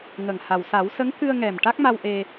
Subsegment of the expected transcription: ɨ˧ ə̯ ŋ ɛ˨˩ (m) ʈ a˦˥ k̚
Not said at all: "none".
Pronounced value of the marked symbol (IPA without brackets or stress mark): m